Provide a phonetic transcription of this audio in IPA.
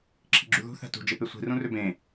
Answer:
ǁʰ i̤ ɡ͡ǁ u ð ṳ θ æ̤ t ṳ d͡ʒ e p e sʷ i̤ r ũ r ø b ẽ

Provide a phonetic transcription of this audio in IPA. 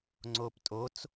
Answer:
ŋ͡ǀ oː p tʼ o t͡s

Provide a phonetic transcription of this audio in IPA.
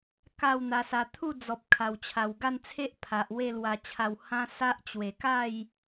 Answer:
k a˥˧ w n̪ a˧ s a˧ t̪ʰ u˥˧ d͡z ɔ˨ p̚ kʰ a˨˩ w t͡ɕʰ a˨˩ w ɡ a˥˧ n t͡sʰ e˦ ʔ pʰ a˨ ʔ w e˥˧ l w a˧ t͡ɕʰ a˧ w h ã˦ s a˦ ʔ t͡ɕ w e˨˩ k a˥˧ j

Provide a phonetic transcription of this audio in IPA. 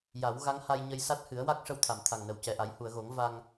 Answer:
j a˨˩˦ w ɣ a˧˥ ŋ h a˧ j ɲ ə˧ j s a˦˥ t̚ h ɨ˨˩˦ ə̯ w a˦˥ k̚ ʂ ə˧ w t̪ʰ a˨˩˨ m t̪ʰ a˨˩ ŋ n ə˨˩ w c ɛ˨˩ ʔ a˨˩˦ j h u˨˩˨ ə̯ ɣ o˨˩˦ ŋ v a˧ ŋ

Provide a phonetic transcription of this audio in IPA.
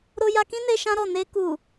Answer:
ɾ o˧ j a˧ k ĩ˦ n e˧ ʃ ã˦ ɾ ɔ˦˨ n e˧ k u˨

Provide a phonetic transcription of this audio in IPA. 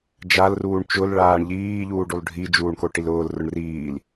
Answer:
d͡ʒ a l r uː ɳ t͡ʃ ʊ l ɭ aː ɳ ʎ iː ʎ uː ɖ u lˠ ɖʱ i d͡ʒ uː ɳ k o ʈ i l ʊː l r ʊ ɳ r iː l

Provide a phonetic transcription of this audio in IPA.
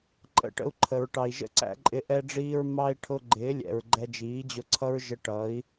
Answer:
ǃʼ ə̰˨˦ ʈ ə̰˧ u̯ ǃʰ ə˨ ɹ ʈ ɑ˨ i̯ ʒ ə̰˦ ǀ æ̰˧ ǃʼ ɪ˧ ʔ ɛ˧ ɖ͡ʐ iː˧ ɹ m ɑ˦ i̯ ʈʰ ʊ˧ ɡ͡ǃ ɪː˨˦ lʲ ɛ̰˨ ɹ ɡ͡ǃ ɛ˧ d͡ʒ iː˨˦ d͡ʑ ʊ˧ ǀʰ ʌ˦ ɹ ʒ ə˧ ʈ ʌ˨˦ i̯

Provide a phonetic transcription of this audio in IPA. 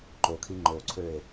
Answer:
ǃ o kʰ i ŋ͡ǃ o ǀʰ ø e̯

